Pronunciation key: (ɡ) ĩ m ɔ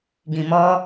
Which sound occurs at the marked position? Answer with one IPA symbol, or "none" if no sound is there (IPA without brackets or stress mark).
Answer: ɡ